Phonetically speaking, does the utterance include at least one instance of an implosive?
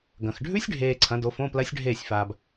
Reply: no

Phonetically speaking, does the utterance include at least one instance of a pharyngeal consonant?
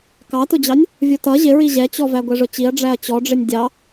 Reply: no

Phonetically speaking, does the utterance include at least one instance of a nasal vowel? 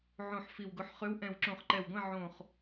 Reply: yes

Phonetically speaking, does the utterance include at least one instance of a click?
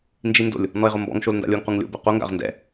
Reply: no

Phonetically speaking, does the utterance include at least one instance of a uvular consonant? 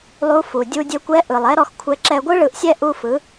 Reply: no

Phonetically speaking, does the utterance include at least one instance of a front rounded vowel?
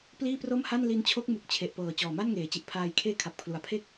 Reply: no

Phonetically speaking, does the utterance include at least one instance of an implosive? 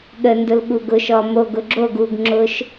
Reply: yes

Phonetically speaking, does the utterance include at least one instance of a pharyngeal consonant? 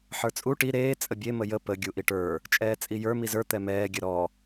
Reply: yes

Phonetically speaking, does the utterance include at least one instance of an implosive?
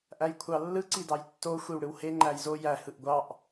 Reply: no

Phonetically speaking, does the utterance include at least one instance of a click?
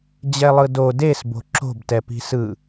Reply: yes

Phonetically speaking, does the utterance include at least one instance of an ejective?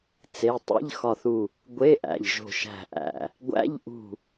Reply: no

